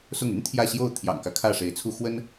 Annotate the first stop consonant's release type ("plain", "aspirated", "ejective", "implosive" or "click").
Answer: aspirated